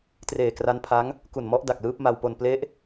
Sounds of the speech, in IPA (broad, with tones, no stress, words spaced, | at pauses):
treː˨˩kra˦˥npʰa˦˥ŋ | ku˨˩nmɔ˦˥ʔ da˨˩k̚lɯː˦˥p̚ma˧wpo˧n ple˦˥ʔ